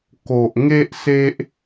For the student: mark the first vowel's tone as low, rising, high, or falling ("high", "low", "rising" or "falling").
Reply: low